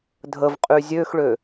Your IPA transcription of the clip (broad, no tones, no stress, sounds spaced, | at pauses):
dʱ ə v qʼ y zʲ ø x ɭ ø